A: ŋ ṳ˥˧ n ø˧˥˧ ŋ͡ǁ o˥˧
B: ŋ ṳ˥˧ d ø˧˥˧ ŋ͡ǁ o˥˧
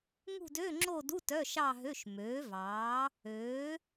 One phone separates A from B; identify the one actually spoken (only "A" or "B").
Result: B